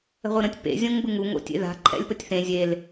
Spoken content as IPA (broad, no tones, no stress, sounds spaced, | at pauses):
ə̤ ʁʷ ɯ ɾ ə̃ tʲ p ḛ zʲ õ ŋ b ɯ ŋ u ŋ o̰ tʲ ḛ ð a̤ ǃʰ ɛ̰ lʲ p ə tʲ θ ẽ zʲ e l